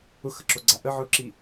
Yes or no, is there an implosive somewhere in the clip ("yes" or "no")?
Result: no